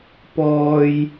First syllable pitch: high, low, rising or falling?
low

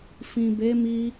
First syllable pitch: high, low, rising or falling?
low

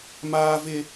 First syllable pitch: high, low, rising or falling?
high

